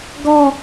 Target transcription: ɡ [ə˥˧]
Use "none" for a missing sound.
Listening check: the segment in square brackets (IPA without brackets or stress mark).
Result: ɔ˥˧